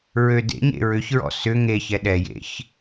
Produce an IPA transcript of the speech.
ɹ ø d ḛ ɲ ḛ ɹ ʏ ç ɹ ɔ̰ s ʏ ŋ e ç ɛ ɗ ɛ j ḛ ç

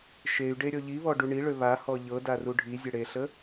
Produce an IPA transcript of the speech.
ʃ e y̯ ɖ e ɾʲ ɔ ʎ i β ɔ ɖ u ɳ i ɭ ø β a h ɔ ʎ ɤ d a r u ɖʱ i zʲ ə ɽ e ɬ ə

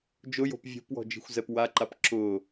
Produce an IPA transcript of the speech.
d͡ʒ ʊ j o̤ p vʲ o̤ p w ɔ̤ d͡ʒ i̤ xʷ z ɛ p w a ǃ a p ǁ ʊː

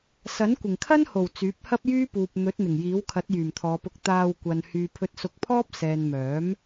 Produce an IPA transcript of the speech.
s ɐ˨˥ n kʷ ɪ˨˩ ŋ kʰ ɐ˥ n h o˨˩ w t͡s yː˨˥ p̚ h ɐ˥ p̚ j yː˥ p uː˨ p̚ n̪ ɵ˨˥ t̚ n̪ ɪ˨˩ ŋ j iː˨˥ w kʰ ɐ˨˥ t̚ j yː˨˩ m t̪ʰ ɔː˨˧ p ʊ˧ k̚ t̪ aː˧ w kʷ ɐ˨ n h yː˨ pʰ ɵ˧ t̚ s ʊ˧ k̚ pʰ ɔː˥ p̚ s ɛː˨ n m œː˨˥ m

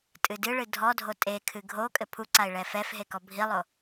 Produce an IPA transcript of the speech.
tʼ ɨ d ɨ ɭ ɨ dʱ ɔ dʱ o tʼ e kʰ ɨ ɡʱ o kʼ ɘ pʰ u ǀ a ɪ̯ ɭ ɛ f ɛ f ɦ e k ɔ bʱ i lˠ o

